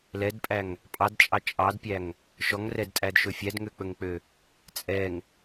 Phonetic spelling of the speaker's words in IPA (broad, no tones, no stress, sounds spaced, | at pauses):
l ɛ d pʼ æ ŋ | pʼ ɑ d t͡ʃʼ ɑ t͡ʃʼ ɑ d pʲ æ ŋ | ʃ ɔ ŋ r ɛ d tʼ æ d ʃ ɵ fʲ æ d ŋ ø k͡p ɵ ŋ k͡p ø | t͡sʼ ɛ ŋ